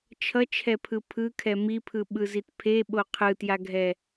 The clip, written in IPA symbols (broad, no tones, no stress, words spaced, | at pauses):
t͡ʃʰʌt͡ʃʰɛpʰɯ pʰɯkʰɛ mipʰɯɓɯzit pʰeɓo qʰɯtjaɡʱɛ